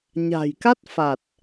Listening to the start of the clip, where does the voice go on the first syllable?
low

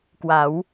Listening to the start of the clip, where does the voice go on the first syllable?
rising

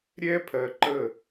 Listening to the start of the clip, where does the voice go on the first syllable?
high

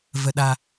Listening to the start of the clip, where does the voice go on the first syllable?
low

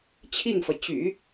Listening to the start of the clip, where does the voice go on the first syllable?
falling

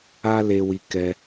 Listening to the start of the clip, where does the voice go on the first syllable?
high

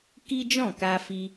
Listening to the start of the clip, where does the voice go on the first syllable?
high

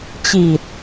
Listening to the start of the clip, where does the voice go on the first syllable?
low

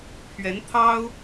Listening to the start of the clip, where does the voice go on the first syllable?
rising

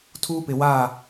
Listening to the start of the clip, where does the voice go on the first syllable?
high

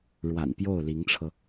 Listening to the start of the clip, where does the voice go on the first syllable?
low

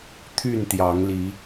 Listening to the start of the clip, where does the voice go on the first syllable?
falling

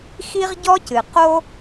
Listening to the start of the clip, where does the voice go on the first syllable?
high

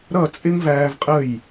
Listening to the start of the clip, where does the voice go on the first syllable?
falling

